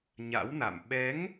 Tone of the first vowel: rising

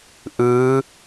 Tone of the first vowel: rising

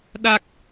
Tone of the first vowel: low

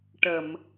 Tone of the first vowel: low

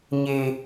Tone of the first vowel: low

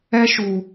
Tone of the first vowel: high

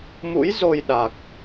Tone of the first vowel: rising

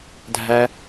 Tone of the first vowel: high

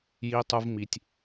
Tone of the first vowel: high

